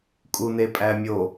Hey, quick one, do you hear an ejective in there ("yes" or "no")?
yes